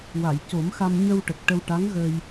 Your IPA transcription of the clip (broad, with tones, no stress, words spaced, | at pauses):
wa˨˩˨j co˨˩˦mxa˧m ɲə˧w ʈə˨˩k̚ʈə˧wʈa˧˥ŋ ɣə˧j